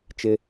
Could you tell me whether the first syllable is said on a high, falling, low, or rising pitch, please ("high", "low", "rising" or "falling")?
high